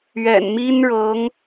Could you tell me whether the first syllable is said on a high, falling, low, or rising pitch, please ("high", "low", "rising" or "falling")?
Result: low